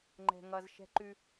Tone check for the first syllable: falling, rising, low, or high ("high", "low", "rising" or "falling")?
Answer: low